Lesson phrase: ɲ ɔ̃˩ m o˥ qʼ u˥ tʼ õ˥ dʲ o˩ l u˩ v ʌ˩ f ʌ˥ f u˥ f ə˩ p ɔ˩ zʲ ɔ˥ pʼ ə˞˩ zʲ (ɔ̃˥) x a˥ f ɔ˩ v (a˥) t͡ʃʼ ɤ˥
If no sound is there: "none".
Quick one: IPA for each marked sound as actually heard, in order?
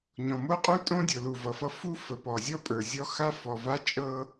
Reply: ɔ˥, a˥

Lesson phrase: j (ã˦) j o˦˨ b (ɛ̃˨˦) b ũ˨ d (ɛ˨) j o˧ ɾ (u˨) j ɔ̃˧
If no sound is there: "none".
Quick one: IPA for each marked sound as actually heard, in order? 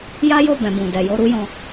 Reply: a˦, ɛ̃˨, ɛ˨, u˦

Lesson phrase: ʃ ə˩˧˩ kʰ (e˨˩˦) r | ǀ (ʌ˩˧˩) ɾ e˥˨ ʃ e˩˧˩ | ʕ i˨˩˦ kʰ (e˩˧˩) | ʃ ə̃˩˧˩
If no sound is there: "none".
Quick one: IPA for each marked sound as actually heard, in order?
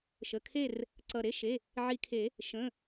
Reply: e˥˨, ʌ˩˧˩, e˨˩˦

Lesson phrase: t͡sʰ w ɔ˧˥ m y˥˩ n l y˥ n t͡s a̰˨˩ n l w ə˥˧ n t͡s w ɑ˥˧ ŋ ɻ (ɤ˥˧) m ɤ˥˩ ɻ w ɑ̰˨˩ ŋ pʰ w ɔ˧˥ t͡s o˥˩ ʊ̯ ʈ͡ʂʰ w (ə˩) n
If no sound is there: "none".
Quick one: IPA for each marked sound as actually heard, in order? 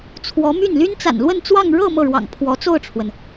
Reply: ɤ˥˧, ə˩

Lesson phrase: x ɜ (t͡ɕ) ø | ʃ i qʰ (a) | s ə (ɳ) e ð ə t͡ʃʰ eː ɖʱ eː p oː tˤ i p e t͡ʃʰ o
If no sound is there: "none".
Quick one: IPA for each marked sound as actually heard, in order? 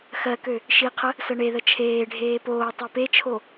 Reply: k, ə, ɳ

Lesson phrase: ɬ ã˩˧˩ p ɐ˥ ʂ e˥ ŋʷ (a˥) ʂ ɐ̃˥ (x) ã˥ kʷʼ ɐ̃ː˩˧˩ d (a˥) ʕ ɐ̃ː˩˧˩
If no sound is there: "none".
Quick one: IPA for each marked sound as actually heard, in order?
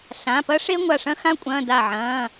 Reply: a˧˩, x, a˧˩

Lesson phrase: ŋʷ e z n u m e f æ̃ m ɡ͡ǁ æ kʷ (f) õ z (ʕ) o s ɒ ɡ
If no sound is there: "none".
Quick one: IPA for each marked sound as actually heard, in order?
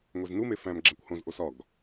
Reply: h, ʔ

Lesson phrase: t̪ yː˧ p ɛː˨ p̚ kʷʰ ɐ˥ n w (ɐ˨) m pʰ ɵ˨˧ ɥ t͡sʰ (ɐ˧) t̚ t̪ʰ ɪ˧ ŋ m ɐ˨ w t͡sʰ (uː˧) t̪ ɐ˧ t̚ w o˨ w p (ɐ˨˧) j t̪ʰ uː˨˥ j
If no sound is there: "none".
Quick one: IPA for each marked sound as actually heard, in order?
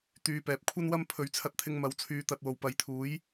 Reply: ɐ˥, ɐ˧, yː˧, ɐ˨˧

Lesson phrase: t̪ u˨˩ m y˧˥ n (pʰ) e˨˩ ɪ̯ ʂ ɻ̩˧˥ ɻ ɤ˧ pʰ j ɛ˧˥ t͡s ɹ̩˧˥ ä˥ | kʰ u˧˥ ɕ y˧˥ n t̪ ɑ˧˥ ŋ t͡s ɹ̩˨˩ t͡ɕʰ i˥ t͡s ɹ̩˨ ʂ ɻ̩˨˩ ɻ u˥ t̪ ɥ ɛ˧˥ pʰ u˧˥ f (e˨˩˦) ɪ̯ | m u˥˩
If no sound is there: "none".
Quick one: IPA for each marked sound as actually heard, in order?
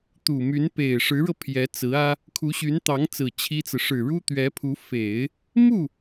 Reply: p, e˨˩˦

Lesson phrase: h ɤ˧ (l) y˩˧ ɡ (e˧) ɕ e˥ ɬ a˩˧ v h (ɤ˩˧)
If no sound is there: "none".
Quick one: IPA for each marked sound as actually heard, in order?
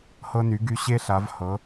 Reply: n, y˧, ɤ˩˧

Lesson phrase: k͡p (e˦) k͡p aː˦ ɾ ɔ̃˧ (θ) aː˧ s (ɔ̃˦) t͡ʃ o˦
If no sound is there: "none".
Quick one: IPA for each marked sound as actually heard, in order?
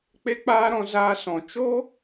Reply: e˦, z, ɔ̃˨

